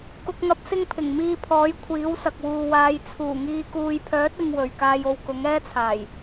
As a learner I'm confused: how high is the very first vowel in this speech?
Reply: high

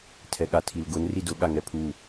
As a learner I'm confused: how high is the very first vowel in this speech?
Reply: mid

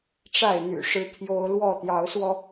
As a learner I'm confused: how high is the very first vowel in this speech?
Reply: low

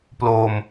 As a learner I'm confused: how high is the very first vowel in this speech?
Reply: mid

